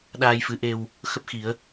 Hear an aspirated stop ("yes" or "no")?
no